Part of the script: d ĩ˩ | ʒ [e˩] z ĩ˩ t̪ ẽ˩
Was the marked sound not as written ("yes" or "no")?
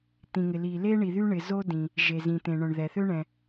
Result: no